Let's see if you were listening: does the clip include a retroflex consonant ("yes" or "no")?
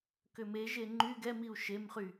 no